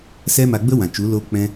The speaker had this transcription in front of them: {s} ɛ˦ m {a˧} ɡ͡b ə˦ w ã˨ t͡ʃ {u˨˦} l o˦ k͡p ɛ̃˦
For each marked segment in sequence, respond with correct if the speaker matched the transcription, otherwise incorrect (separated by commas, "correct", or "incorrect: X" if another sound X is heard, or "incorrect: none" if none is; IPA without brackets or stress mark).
correct, correct, correct